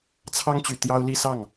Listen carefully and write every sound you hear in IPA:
t͡sʰ ɑ˥ ŋ t͡ɕ y˨˩ t̪ j ɑ˥ ʊ̯ l i˥˧ s ɑ˥˩ ŋ

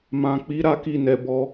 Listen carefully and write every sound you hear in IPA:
m ã˨ k͡p i˨˦ ɾ a˦ k i˧ n ɛ˨ b ɔ˧

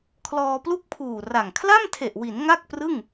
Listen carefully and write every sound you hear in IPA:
kʰ l ɔː˧ p l u˥˩ k̚ pʰ uː˨˩ r a˨˩ ŋ kʰ l a˥˩ m tʰ e˨˩ ʔ w i˩˦ n ŋ a˥˩ k̚ p r ɯ˥˩ ŋ

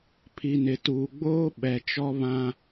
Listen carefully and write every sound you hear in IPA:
pʰ i˨ n ɪ˨ t uː˨ ɡ͡b oː˦ ɓ ɛ˨ t͡ʃ ɔ˦ β ã˦

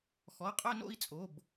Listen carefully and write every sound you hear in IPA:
x ɔ˩˧˩ qʼ œ˥˧ n o̰˥˧ i̯ t͡sʼ o˩˧˩ b

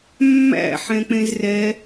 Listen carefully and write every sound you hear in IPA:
mː æ̰ ħ ɛ̃ k͡p ẽ z r ɛ

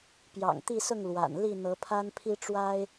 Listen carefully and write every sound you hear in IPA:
p j ɑ̰˨˩ ŋ t̪ i˥˨ s ʊ˥˨ ŋ l w a̰˨˩ n l i˥˨ n̪ ɤ˨˦ pʰ a˦ n pʰ i˦ ʈ͡ʂ w a˦ ɪ̯

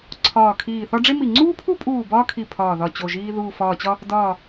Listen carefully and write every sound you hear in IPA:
ǀʰ ɒː˧˩ kʰ iː˧˩ θ ɒ˥ ɖ͡ʐ e˥ m i˧˩ ŋ͡ǀ uː˥ pʰ u˥ pʼ uː˧˩ b ɒː˥ kʰ i˧˩ pʰ ɒː˧˩ ð ɒ˧˩ t͡ɕ o˧˩ ʒ iː˥ ð uː˧˩ f ɒː˧˩ t͡ɕ ɒ˥ | d ɒː˧˩

